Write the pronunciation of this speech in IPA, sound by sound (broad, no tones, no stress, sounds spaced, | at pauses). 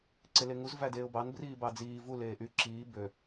ǀ e l e ŋ u z v æ d eː ʊ̯ b ɑ n b r iː b ɑ d͡z iː v u l eː ʔ y ǁ iː b ø